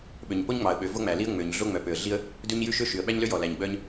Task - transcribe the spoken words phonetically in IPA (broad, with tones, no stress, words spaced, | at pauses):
ɓø˩ɲpo˥ɲŋ͡mɑ˩ə̯ɓø˩ vo˥ŋ͡mæ˩li˥ə̯ ŋ͡mø˩ɲ ɮo˥ŋ͡mœ˩pø˩ə̯ɮi˥ə̯ | dʉ˥ɲ jʉ˥ʃø˥ ʃy˩ə̯ɓæ˥ɲlø˥jɔ˩ læ˩ɲɡ͡bœ˥ɲ